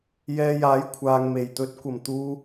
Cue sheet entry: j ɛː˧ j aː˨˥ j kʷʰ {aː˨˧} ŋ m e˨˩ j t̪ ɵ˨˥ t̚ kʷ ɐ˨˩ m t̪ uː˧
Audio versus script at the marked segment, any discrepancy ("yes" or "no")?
yes